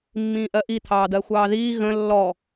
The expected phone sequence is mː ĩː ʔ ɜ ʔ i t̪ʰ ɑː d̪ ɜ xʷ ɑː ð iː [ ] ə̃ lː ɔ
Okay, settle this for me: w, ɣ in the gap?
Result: ɣ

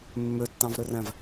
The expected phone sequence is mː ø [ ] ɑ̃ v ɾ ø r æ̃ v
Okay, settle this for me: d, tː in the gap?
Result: tː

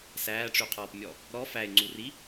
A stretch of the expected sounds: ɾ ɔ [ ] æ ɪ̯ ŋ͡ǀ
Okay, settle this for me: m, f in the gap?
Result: f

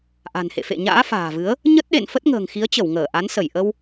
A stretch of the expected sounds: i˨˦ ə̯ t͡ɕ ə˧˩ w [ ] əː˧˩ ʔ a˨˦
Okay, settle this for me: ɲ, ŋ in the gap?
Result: ŋ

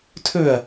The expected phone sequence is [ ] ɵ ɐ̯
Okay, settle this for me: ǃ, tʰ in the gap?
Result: tʰ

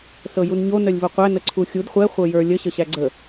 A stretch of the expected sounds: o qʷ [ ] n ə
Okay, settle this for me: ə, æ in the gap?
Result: æ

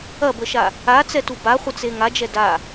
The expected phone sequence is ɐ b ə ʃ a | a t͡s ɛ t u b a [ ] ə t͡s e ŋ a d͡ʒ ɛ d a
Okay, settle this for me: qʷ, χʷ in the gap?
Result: χʷ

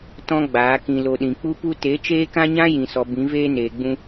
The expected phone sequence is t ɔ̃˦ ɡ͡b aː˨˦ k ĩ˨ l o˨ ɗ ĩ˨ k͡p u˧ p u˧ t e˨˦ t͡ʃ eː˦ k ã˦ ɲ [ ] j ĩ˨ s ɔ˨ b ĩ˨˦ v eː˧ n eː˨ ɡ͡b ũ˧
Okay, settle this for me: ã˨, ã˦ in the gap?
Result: ã˦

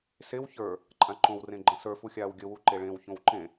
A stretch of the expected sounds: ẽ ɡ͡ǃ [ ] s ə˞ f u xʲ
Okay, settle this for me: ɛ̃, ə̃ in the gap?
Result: ə̃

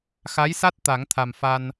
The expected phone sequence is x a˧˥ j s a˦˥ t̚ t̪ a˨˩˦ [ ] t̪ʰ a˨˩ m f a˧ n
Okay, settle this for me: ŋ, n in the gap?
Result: ŋ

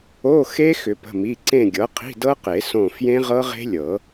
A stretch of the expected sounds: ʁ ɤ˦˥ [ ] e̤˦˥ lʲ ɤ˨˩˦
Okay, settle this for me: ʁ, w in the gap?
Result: ʁ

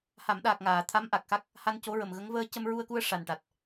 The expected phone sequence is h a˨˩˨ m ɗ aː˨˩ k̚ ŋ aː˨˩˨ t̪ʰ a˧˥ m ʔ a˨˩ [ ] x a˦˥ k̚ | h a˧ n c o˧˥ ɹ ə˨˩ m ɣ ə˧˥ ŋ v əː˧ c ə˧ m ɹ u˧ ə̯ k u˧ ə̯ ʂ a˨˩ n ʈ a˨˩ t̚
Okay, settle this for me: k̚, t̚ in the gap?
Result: k̚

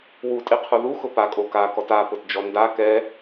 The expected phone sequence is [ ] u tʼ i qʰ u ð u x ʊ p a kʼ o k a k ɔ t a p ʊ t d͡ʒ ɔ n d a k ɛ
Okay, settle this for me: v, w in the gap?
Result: w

